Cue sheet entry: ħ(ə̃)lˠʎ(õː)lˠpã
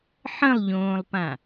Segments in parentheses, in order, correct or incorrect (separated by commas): correct, correct